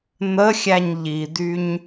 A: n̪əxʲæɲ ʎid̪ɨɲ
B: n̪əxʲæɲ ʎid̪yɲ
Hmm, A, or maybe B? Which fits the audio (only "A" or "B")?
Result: B